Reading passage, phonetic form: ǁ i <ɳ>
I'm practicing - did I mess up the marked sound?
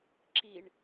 no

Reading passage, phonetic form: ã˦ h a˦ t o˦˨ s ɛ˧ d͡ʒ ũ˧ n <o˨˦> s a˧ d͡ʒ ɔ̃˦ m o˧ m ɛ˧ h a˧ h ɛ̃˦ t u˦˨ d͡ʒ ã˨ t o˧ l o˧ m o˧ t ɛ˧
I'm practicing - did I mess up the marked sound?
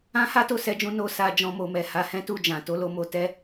yes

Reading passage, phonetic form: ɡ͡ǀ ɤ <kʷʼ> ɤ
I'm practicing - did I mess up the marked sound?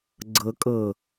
yes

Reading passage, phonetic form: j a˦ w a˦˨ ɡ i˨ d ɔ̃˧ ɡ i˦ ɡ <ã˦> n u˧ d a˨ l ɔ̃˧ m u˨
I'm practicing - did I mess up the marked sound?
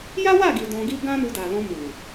no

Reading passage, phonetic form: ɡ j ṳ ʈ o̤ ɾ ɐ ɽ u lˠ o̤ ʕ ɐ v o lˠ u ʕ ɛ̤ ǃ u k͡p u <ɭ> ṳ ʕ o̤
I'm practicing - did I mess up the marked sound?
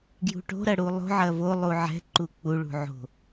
no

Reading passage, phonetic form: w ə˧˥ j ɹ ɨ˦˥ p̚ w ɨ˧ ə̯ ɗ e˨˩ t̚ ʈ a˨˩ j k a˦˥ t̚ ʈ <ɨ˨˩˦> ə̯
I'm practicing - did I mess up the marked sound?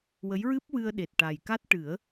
no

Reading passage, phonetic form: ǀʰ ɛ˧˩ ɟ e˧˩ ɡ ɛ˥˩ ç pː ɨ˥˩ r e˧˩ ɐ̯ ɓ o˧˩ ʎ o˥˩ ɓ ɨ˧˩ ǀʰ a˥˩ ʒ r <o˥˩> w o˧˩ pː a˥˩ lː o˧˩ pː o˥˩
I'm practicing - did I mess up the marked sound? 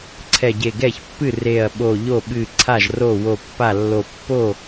no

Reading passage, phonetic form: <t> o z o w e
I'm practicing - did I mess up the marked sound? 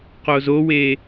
yes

